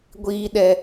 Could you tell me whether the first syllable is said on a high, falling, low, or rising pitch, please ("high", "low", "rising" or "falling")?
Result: high